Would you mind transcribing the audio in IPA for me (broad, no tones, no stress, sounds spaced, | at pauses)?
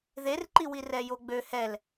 ð e r ǃ i w i r ɛ j o ɡ͡b ø h ɛ l